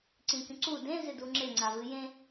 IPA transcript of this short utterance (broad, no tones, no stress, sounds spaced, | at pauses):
ǀ ĩ kʲ ũ ǀ u d ẽ z ɪ d u ŋ͡ǁ ɪ ŋ͡ǀ a v ɨ j ẽ